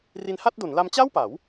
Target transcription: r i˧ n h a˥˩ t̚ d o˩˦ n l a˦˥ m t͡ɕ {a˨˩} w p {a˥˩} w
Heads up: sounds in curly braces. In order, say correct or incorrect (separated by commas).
incorrect, incorrect